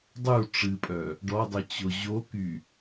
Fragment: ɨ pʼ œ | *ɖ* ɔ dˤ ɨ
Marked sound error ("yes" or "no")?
no